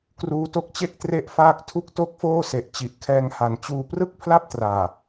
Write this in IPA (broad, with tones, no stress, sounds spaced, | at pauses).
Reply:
k r uː˦˥ t o˦˥ k̚ t͡ɕ e˥˩ k̚ t r e˥˩ ʔ f aː˥˩ k̚ tʰ u˥˩ k̚ t o˥˩ k̚ f oː˥˩ s e˨˩ ʔ t͡ɕ i˨˩ ʔ kʰ ɛː˧ ŋ h a˩˦ n t͡ɕ uː˧ p r ɯ˥˩ k̚ pʰ l a˥˩ p̚ t r aː˨˩